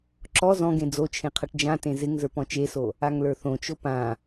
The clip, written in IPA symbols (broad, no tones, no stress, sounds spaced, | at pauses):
ǁ ɔ z ɔ̃ ɡ ẽ d͡z o t͡ʃʰ ẽ qʰ ʌ ʈ d͡ʒ ã t ẽ z ɪ ŋ z ə˞ p ɔ̃ t͡ʃ e s o | a ŋ l ə˞ θ õ t͡ʃ o p ã